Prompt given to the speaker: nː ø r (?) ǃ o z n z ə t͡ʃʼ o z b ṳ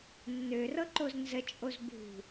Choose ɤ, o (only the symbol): ɤ